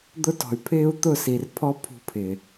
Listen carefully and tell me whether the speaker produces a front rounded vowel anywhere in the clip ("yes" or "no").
yes